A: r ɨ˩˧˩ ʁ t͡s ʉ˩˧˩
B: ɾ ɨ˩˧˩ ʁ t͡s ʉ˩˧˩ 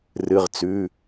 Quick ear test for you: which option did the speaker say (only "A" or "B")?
A